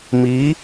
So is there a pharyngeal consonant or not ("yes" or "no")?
no